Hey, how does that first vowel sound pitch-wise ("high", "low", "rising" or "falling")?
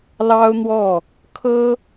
high